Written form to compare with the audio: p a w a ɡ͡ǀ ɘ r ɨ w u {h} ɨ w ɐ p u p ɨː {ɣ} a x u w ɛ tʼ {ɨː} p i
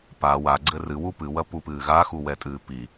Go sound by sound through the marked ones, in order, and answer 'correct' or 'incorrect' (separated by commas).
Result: incorrect, correct, correct